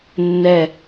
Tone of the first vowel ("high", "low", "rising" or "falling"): falling